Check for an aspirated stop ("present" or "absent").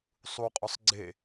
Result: absent